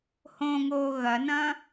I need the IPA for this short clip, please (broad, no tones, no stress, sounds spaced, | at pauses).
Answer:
h õ ŋ oː ɣ ɐ n ɐ̃